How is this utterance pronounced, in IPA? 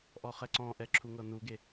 ʔ ɔ χ ɛ ǀ ɔ̃ ʔ ɛ ǁʰ u ŋ ɤ n u ɡ e

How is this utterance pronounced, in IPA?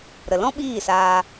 ɾ ə˨ l ɔ̃˦ ɓ iː˦˨ s aː˧

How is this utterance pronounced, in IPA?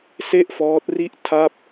s e˥˩ ʔ f ɔː˦˥ t̚ r i˥˩ ʔ tʰ a˥˩ p̚

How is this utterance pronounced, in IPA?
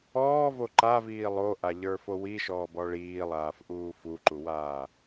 ɔː v o ǃ a v iː lˠ o ʔ a ʎ ə˞ f o w i ʃ ɔː b ɔ ɭ iː lˠ aː f ʔ uː f u ǃ u w aː

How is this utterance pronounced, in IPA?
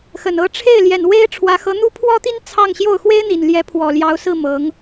x ə˨˩ n ɤ˧˥ ʈ͡ʂʰ e˥˩ ɪ̯ l j ɛ˨˩ n w e˥ ɪ̯ ʈ͡ʂʰ w ä˧˥ x ɤ˧˥ n̪ u˥ pʰ w ɔ˥ t̪ i˥ n t͡sʰ ɑ˥˧ ŋ ɕ j o˥˩ ʊ̯ x w e˥ ɪ̯ n̪ i˨˩ n l j ɛ˧˥ pʰ w ɔ˨˩ l j ɑ˧˥ ʊ̯ s ɹ̩˥˩ m ɤ˧˥ ŋ

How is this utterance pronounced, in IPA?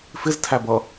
f ɪ z tʰ æ b ʌ

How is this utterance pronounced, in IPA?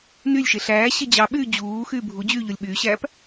n y lʲ ʃ e ɬ æː ɕ e d͡ʑ ɑ ɓ yː d͡ʑ uː x yː bʱ u d͡ʑ yː ʎ o lʲ ɓ yː ɕ æː p

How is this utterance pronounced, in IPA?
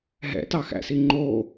ɦ ɛ̰ t ɑ x æ̰ s i ŋ͡ǃ o

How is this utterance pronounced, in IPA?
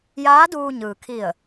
j aː˧˥ d uː˧ ɲ ɯː˩ kʰ i˧˩ ə̯

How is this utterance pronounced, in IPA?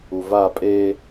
u v a pʼ e

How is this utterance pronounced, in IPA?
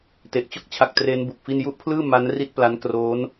t e˨˩ ʔ t͡ɕ o˥˩ k̚ t͡ɕʰ a˨˩ k̚ t r e˦˥ n b u˨˩ k̚ f i˥˩ n j u˥˩ ʔ pʰ l ɯː˥˩ m a˦˥ n r i˥˩ t̚ p l a˦˥ n k r oː˦˥ n

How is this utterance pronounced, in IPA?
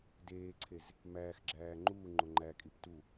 d eː ǀʰ e z | m æː x ɡ͡ǁ æː ŋ͡ǃ uː ŋ͡ǃ o ŋ͡ǃ æ kʼ i p t u

